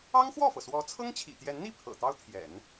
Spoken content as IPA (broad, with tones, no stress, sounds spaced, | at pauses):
ɑ˥ ŋ x w ɔ˥˩ f ɤ˩ s w ɔ˧˥ t͡sʰ ɤ˥ ŋ t͡ɕʰ ḭ˨˩ t̪ j ɛ˧˥ n n̪ i˥˩ pʰ ɤ̰˨˩ t̪ ɑ˥ ʊ̯ t̪ʰ j ɛ̰˨˩˦ n